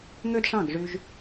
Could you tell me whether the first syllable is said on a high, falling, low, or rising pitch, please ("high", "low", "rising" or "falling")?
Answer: high